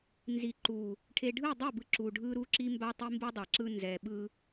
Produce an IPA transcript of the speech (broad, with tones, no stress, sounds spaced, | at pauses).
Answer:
n z i˨ ǃ u˨ | ʈʰ e˨ ɖʱ ɯ˦˨ dˤ ɛ˦˨ b ɯ˨ ǁ u˨ ɖʱ ɯ˦ ɾ u˦ ǁ i˦ m b a˦ tˤ i˦ m b u˦ dˤ a˨ ǁ ɯ˦ n z ɛ˨ ɓ ɯ˦